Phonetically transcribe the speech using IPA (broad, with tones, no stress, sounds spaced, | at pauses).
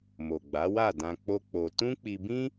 m o˨ ɡ͡b a˨˦ w a˦˨ d ã˧ k͡p o˦ k͡p o˧ t ũ˦ k͡p i˧ b ĩ˦